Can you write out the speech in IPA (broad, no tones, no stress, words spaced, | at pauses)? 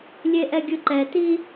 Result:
lʲeʔɛɡʲɯǃɛ ti